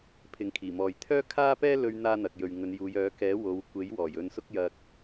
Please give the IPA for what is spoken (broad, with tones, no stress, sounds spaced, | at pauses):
pʰ ɪ˨ ŋ kʰ iː˨˩ m ɔː˨ j t̪ʰ œː˥ kʰ aː˥ p ɛː˥ l ɵ˧ ɥ n̪ aː˥ n̪ ɐ˨ k̚ j ɵ˨ ɥ ŋ ɵ˨˧ n j uː˨˧ j œː˨˥ k ɛː˨˥ w o˨˧ w kʷ e˨˥ j w ɔː˨˩ j ɵ˧ n s ʊ˥ k̚ j ɐ˧ k̚